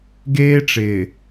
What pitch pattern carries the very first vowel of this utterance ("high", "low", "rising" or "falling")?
high